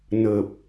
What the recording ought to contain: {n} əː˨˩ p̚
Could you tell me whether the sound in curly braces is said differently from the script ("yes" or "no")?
no